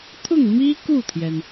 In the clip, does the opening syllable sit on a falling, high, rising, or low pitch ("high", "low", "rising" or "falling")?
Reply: falling